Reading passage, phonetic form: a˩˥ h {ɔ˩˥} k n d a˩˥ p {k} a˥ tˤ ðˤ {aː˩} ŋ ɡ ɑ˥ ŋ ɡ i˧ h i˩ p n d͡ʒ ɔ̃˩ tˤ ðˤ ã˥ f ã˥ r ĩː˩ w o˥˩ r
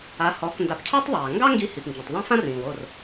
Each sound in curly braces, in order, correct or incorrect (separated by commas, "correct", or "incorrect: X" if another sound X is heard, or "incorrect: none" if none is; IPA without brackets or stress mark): correct, incorrect: cʰ, correct